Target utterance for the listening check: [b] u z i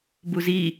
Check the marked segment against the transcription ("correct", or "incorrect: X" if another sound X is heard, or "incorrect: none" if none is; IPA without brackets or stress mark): correct